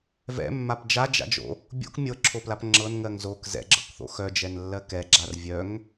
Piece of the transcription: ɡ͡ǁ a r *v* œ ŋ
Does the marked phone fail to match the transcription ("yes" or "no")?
yes